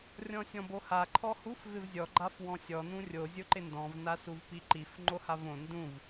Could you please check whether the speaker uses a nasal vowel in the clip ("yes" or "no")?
yes